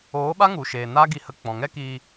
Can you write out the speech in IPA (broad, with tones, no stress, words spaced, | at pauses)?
oː˨˦ɓa˦ŋu˨ʃeː˨ na˦ɡi˧hə˧ k͡pɔ̃˨ ŋɛ˦kiː˧